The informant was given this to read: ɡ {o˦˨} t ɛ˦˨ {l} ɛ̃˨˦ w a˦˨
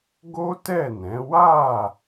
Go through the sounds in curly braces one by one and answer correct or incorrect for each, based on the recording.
incorrect: o˦, incorrect: n

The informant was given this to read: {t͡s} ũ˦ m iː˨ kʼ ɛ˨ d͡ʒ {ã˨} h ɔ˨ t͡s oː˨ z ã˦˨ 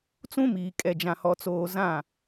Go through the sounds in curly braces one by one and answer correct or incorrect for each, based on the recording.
correct, correct

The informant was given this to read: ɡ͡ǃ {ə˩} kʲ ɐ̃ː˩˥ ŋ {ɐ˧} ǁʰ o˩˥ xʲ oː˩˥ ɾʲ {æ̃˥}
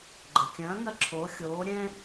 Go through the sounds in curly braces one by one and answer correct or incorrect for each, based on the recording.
correct, correct, incorrect: ɛ̃˥

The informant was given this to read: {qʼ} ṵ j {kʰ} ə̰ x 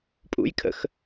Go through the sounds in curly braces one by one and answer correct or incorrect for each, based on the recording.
incorrect: pʼ, correct

